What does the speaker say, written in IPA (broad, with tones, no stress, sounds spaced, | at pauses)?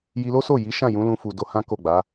j i˧ l o˦ s o˦˨ j i˨˦ ʃ ã˦˨ j ũ˨˦ l ũ˧ f u˨ d o˧ h ã˦ k o˦˨ ɡ͡b a˨˦